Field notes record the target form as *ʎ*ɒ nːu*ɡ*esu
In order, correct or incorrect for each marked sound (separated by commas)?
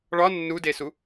incorrect, incorrect